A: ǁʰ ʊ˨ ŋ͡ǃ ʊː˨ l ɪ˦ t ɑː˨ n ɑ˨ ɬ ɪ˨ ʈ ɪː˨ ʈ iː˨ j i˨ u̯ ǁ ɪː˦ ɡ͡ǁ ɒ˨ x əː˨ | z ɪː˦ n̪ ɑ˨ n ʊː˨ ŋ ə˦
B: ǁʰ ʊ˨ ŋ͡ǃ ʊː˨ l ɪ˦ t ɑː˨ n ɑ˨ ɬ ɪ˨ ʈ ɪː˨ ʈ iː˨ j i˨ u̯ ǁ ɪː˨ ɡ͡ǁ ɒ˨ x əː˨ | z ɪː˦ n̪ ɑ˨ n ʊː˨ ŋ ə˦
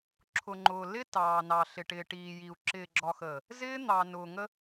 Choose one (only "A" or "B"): B